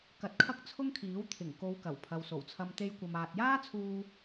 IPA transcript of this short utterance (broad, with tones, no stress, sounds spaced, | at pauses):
k ɐ˧ t̚ kʰ ɐ˥ k̚ t͡sʰ ʊ˥ ŋ kʰ iː˨˥ w t̪ʰ ɪ˨˩ ŋ k o˨˧ w k ɐ˨˩ w pʰ ɐ˨ w s o˨˩ w t͡sʰ ɐ˧ m t̪ e˧ j kʷ ɐ˨ m aː˨ t̚ j aː˥ t͡sʰ uː˧